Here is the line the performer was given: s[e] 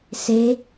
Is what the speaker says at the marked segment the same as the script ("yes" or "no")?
yes